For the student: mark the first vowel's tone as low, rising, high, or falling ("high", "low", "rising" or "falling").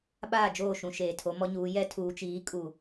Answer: falling